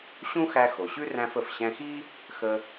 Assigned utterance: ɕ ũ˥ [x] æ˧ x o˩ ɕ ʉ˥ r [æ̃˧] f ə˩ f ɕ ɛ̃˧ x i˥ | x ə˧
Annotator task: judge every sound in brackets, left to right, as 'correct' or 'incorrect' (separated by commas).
correct, correct